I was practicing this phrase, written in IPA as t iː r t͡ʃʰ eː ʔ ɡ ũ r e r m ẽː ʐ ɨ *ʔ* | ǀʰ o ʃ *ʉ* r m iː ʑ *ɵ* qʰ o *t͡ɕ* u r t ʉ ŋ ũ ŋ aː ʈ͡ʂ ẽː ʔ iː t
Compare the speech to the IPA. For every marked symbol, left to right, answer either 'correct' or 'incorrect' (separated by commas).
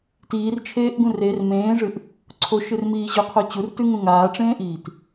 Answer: correct, incorrect, correct, correct